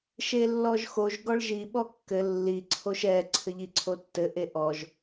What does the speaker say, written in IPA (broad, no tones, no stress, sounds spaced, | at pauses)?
ʃ e lː ɔ ʒ x o ʒ ɡ ɔ ɭ ʒ i ɓ ɔ kː ɘ lː i ǀʰ o ʃ ɛ ǀʰ ɘ ʎ i ǀʰ o tː ɘ ʔ e ʔ ɔ ʒ